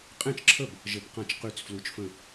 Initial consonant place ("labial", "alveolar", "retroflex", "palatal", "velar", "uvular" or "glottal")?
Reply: uvular